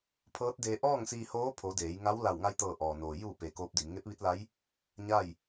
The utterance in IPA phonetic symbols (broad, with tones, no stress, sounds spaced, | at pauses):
pʰ ɤː˧˥ t̚ d eː˧ ʔ ɔː˥˨ ŋ s iː˧ h oː˧˥ pʰ o˩˧ d eː˩˧ j ŋ a˧˥ w l a˧˩ w ŋ a˧ j t̪ ɤː˧˩ ʔ ɔː˩ n oː˩ j u˧˩ p e˩ k oː˧˥ p̚ d i˩˧ m ŋ e˧˥ p̚ ʋ i˧˥ t̚ l a˧˥ j | ɲ a˥˨ j